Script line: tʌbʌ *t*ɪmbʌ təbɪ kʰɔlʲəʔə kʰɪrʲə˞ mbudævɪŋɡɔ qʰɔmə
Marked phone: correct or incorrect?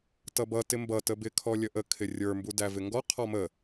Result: correct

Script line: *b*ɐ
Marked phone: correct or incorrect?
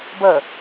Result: correct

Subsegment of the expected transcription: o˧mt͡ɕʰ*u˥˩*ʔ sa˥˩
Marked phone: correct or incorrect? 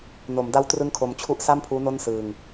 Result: correct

